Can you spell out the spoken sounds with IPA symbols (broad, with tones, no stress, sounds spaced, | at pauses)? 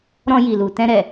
ɾ ɔ̃˧ j i˨ l u˨ t ɛ̃˧ ɾ ɛ˨